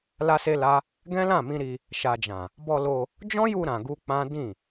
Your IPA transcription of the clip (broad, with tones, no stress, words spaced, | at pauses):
la˦se˦la˦ | ɡɛ̃˦lã˦˨mĩ˧ɾi˧ | ʃa˨d͡ʒã˨ | bɔ˧ lo˧ | d͡ʒɔ̃˦ju˧ ɾã˨ɡu˧ k͡pã˦ dĩ˦˨